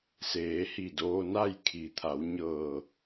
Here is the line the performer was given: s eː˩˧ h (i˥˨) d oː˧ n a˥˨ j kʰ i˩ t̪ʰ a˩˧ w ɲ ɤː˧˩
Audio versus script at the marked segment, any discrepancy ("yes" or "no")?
yes